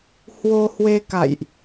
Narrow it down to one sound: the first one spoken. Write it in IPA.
h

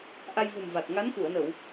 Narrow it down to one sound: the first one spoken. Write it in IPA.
ʔ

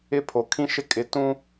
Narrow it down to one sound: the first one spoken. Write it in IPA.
ɪ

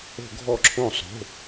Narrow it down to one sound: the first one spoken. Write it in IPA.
o̤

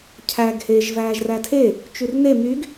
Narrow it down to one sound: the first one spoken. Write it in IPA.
cʰ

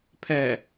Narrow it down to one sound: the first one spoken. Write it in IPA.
pʰ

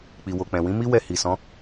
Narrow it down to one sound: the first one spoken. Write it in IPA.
k͡p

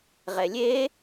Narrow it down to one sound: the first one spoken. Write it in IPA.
ʁ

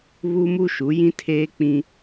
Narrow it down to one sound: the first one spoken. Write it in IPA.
β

